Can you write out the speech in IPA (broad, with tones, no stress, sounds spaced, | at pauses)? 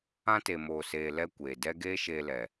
ã˦ t e˨ m oː˨ s eː˨ l ɛ˧ kʷ eː˨ d ɛ˦ ɡ eː˦ ʃ eː˧ l ɛ˨